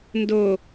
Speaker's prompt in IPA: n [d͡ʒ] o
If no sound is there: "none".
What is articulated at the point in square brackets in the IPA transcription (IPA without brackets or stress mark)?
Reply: d